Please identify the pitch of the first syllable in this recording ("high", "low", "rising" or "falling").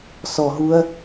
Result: low